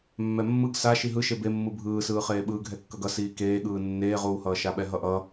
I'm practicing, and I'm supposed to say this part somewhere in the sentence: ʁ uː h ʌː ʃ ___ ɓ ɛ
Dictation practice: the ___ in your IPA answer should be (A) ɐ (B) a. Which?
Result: B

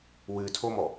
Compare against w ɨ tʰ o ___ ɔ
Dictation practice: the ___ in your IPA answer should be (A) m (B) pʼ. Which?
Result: A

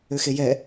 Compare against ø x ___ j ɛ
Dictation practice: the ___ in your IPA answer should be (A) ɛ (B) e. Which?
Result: B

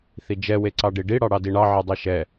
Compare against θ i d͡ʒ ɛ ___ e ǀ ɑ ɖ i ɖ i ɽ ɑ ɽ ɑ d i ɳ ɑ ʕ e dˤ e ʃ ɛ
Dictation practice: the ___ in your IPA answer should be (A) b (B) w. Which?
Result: B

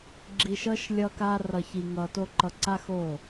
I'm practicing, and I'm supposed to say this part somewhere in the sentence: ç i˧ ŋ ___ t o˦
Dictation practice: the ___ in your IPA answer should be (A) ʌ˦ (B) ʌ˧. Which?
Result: B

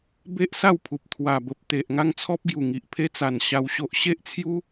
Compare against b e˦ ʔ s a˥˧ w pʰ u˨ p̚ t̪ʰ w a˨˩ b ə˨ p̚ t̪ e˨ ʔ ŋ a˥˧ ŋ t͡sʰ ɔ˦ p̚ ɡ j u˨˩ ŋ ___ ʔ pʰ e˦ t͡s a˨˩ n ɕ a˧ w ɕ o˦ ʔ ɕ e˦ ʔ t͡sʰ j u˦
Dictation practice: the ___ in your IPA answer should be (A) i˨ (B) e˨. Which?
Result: A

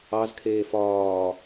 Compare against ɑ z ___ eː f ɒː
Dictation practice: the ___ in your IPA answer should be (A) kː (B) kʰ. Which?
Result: B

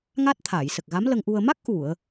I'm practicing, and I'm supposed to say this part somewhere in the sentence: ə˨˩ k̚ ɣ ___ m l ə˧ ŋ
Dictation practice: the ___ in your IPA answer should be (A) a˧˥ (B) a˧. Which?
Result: A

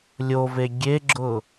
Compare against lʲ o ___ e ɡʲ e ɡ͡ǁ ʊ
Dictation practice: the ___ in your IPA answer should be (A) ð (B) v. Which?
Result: B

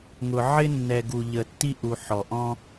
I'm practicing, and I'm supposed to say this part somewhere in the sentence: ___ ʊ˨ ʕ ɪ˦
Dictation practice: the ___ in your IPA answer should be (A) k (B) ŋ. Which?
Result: B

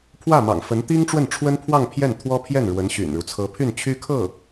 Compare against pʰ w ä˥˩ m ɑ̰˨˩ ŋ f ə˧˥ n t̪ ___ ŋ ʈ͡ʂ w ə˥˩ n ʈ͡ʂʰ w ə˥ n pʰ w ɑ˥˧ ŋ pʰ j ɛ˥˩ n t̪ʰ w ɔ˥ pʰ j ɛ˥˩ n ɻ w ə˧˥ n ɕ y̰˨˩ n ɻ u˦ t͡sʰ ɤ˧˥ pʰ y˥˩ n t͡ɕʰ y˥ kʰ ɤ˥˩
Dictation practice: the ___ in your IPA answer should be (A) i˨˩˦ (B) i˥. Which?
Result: B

